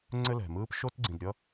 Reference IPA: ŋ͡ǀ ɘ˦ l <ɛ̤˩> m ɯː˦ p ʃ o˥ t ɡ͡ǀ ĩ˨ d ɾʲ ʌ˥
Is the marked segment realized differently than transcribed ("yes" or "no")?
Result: no